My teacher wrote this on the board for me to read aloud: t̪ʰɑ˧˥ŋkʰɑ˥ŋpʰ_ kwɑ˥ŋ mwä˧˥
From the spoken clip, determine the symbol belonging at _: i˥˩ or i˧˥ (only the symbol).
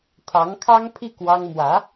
i˥˩